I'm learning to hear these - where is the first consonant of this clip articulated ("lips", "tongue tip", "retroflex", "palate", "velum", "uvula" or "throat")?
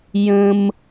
palate